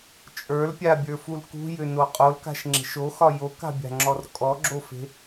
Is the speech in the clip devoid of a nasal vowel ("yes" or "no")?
yes